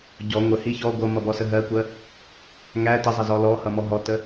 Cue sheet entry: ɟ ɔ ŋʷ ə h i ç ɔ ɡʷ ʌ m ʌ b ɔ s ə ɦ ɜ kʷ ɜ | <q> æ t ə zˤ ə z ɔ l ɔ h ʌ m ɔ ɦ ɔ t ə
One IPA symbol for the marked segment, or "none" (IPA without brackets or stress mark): ŋ